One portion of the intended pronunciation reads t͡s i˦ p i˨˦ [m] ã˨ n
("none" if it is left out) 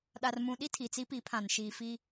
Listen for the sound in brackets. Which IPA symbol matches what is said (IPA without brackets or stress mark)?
pʰ